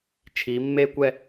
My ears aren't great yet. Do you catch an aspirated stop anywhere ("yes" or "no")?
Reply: yes